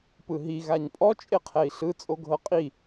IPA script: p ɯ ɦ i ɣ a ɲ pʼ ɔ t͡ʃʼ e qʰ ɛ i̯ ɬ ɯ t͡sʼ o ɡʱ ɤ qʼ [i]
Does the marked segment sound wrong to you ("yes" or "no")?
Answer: no